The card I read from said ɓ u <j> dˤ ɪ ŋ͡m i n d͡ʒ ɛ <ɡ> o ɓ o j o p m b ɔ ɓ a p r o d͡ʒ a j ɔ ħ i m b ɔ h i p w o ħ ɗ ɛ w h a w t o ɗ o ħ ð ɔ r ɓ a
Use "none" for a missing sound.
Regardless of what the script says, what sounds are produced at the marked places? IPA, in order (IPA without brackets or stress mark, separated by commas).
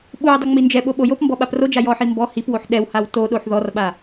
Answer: j, ɓ